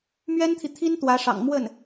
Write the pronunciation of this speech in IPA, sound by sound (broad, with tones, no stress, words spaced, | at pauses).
mɥɛ˥nt̪ʰi˨t̪ʰi˥n t̪wä˧˥ʂɑ̰˨˩ŋ mwə˥˩n